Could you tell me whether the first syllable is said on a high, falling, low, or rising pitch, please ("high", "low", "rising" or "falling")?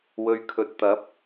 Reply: low